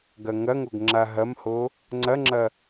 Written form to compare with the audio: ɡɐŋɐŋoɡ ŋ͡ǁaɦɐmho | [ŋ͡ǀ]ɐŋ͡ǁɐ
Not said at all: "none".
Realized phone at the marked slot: ŋ͡ǀ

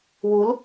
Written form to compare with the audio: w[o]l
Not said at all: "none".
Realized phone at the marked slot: u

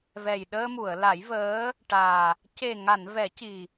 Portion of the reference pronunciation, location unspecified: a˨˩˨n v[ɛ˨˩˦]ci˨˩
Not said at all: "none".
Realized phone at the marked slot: ɛ˨˩˦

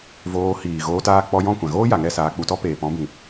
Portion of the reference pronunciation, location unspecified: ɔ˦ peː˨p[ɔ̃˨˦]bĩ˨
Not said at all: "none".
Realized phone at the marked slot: ɔ̃˨˦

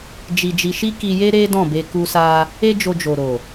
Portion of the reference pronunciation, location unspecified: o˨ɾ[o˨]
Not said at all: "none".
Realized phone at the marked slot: o˨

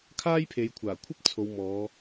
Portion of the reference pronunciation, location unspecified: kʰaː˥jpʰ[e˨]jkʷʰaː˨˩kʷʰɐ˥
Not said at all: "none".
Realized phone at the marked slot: e˨˧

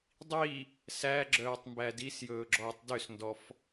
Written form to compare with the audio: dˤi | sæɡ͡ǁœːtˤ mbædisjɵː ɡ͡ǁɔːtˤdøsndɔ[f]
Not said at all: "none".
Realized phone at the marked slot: f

